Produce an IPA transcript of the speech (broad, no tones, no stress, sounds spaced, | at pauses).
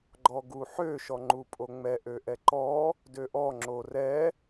ɡ͡ǃ ɔ ɡ u ħ ø ʃ ɔ ŋ͡ǃ u pʼ o ŋ͡m ɛ ʔ ø ʔ ɛ ǃ ɔ | d ø ʔ ɔ ŋ͡ǁ o r ɛ